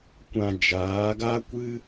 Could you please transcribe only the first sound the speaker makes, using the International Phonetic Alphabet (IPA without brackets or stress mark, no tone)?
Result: kʷ